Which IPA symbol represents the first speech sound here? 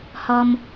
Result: h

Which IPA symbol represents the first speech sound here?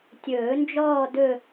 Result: tʲ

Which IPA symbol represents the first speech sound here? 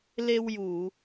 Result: l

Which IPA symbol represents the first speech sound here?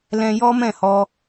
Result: l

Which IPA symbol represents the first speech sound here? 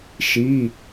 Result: ʃ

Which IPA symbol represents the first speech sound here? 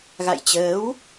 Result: ɣ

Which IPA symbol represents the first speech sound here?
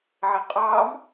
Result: ʕ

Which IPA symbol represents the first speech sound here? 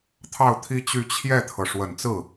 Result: t̪ʰ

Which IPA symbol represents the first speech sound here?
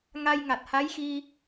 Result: ŋ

